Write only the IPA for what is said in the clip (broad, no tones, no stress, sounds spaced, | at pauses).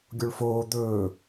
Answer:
ɡʲ o ɭ f oː d̪ ɵː